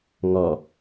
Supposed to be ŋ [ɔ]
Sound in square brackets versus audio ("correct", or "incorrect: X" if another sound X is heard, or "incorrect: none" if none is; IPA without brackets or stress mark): correct